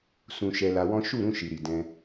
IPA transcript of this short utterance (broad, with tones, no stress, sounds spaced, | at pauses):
s ũ˨ ʃ ɛ˧ l a˧ w ɔ̃˦ ʃ u˦˨ ɾ ũ˧ ʃ i˨ ɾ i˨ d ɛ̃˧